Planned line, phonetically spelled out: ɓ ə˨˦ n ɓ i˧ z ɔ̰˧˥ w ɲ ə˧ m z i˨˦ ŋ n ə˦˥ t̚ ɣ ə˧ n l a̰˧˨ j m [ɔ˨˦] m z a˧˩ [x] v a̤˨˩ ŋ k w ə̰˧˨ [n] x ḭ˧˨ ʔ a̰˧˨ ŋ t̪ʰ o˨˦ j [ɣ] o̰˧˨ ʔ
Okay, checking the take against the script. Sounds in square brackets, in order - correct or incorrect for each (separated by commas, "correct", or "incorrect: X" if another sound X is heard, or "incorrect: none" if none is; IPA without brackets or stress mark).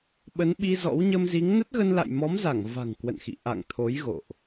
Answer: correct, incorrect: ŋ, correct, correct